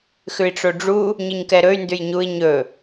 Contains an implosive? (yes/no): no